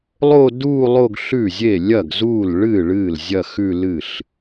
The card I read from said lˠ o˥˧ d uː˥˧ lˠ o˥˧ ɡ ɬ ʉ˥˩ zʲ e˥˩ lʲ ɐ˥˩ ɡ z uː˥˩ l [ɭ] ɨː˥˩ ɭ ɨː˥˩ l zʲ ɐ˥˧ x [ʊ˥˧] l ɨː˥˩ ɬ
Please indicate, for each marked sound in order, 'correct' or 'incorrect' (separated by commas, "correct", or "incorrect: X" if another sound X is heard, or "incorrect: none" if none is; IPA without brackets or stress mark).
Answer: correct, incorrect: ʉ˥˧